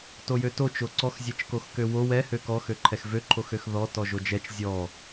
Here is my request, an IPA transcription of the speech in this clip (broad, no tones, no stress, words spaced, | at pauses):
tojøto t͡ʃoǀɔx zʲɛt͡ʃkoxkøwo wɛ høkɔxøǃʰɛx vøǃʰox øxðɔ tɔʒod͡ʒɛt͡ʃ zʲɔ